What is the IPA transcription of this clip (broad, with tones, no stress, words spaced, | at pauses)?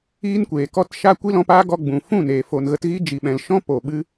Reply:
iː˦nkʷeː˨ kɔ˧tʃa˧ kʷi˦lɔ̃˧paː˦ ɡɔ˧ɡ͡bũ˨ fũ˦˨neː˨ fo˨nɣə˧tɣi˦ d͡ʒi˨ɓɛ̃˨lʃɔ̃˦ po˨ɓɨ˦